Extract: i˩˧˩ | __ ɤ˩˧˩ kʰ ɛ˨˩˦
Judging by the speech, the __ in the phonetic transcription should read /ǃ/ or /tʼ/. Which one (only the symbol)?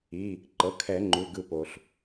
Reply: ǃ